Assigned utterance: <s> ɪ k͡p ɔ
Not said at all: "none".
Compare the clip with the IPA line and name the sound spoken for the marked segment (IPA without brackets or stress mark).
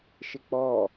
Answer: ʃ